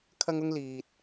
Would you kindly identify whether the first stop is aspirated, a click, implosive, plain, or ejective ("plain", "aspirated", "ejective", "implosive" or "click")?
aspirated